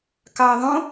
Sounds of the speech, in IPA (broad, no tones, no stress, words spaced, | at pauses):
kɑə̯ðˤõ